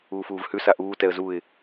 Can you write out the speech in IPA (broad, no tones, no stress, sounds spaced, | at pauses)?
uː f uː v h ʉ s a ʔ uː t ɛ ə̯ z u ɪ̯